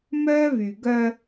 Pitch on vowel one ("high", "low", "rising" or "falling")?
high